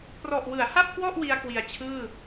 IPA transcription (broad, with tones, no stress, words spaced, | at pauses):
prɔ˨˩ʔwɯ˩˦a̯ha˥˩p̚kwɔ˥˩ʔ wi˧a̯ kwi˨˩a̯t͡ɕʰɯː˥˩